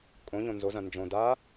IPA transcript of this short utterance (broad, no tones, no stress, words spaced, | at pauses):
kʼõʎõ nzozɐ̃ nd͡ʒõ da